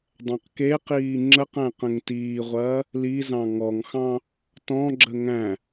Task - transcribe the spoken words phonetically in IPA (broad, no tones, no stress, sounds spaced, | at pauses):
dˤ ɛ̃ q k e q iː ŋ͡ǁ ə q æ̃ q ə̃ ŋ t iː ʁʷ ɐː | l i z ɑ̃ ŋ ɔ ŋ x ɑ̃ | t ɔ̃ ɡ͡ǁ ə ŋ æ̃